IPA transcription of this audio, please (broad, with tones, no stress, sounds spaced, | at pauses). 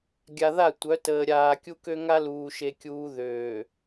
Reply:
ɡʲ a˨ ð a˦˨ tʷ œ˨˦ t əː˨ ɾʲ aː˨ kʲ u˦ k ø˦ ŋ a˦ l uː˨ ʃ e˦ kʲ uː˦ ð øː˨